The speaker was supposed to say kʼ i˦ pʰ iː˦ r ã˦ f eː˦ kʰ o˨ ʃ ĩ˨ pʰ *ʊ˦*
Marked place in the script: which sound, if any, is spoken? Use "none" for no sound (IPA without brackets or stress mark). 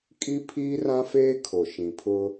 ʊ˦